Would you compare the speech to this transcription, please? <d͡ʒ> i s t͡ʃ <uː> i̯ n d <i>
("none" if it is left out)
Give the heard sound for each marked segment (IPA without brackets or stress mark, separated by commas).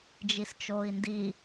d͡ʒ, oː, i